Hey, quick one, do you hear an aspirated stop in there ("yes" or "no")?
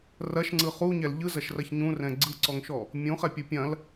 no